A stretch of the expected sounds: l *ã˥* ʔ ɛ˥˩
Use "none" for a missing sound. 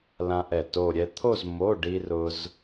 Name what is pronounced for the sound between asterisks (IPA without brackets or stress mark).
ã˥